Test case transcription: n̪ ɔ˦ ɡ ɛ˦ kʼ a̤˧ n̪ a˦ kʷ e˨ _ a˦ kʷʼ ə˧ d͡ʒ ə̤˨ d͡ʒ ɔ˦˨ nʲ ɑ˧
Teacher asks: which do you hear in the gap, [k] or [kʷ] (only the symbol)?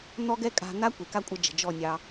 k